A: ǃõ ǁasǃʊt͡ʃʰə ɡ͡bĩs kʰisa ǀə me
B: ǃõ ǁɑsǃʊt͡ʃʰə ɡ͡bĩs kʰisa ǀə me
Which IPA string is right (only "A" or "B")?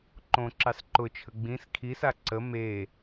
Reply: B